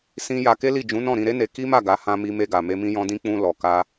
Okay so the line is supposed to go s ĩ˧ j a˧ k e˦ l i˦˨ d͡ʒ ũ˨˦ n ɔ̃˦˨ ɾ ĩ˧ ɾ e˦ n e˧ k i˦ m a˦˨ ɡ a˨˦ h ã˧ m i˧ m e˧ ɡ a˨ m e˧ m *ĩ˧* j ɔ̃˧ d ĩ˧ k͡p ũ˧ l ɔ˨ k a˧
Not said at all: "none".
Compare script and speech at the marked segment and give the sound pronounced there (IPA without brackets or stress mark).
ĩ˧